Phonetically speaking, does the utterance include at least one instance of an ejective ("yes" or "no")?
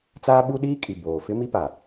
yes